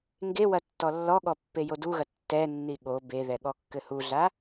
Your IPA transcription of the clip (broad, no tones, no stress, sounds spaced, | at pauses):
ŋ ɡ e w ɐ tː ɔ lː ɔ ɠ ɔ pː e j o d u ɣ ɐ tː ɛ nː i ɠ o b e ð ɛ ɠ ɔ kː ɘ h u ɮ a